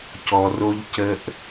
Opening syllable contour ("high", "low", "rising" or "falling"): low